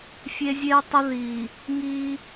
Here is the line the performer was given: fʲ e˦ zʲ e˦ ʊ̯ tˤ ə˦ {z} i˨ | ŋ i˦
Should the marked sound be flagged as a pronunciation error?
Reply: yes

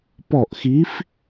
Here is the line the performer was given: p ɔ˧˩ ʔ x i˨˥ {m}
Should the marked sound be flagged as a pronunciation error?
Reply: yes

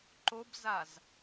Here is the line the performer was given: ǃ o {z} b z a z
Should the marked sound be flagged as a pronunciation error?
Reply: yes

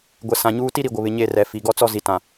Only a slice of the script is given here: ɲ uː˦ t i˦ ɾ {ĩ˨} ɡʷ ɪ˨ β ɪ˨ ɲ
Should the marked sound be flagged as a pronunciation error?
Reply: yes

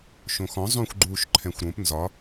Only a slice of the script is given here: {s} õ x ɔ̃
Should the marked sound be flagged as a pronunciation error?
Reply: yes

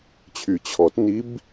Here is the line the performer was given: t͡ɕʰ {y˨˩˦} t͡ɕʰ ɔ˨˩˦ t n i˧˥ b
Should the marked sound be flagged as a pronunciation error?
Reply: no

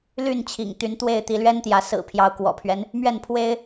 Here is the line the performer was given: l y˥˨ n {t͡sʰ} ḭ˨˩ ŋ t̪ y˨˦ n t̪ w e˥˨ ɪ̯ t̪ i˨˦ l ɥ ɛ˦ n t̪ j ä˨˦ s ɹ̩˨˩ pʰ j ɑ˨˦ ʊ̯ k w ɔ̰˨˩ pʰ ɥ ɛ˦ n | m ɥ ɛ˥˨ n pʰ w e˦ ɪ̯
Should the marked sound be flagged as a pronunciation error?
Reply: yes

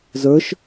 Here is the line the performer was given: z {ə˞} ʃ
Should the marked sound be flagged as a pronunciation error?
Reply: no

